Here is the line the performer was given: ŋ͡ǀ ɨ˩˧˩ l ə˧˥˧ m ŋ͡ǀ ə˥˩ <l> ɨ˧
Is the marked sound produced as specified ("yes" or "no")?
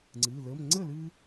yes